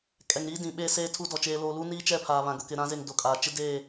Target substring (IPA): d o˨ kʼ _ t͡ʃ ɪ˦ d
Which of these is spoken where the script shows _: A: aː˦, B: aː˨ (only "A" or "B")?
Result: B